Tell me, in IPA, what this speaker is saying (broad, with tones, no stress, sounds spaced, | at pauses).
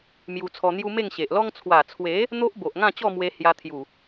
m j u˧ t͡sʰ ɔ˧ n̪ j u˦ m e˥˧ ŋ ɕ e˨ ʔ l ɔ˦ ŋ t͡sʰ w a˨˩ t͡sʰ w e˨˦ | n̪ o˦ ʔ b o˨ ʔ ŋ ã˥˧ t͡ɕ ɔ˥˧ m w e˧ h j a˧ t̪ʰ j u˨˩